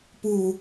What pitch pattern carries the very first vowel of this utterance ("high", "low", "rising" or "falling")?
low